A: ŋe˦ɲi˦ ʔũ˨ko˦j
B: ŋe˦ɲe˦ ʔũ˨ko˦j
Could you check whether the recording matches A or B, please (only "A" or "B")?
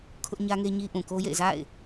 A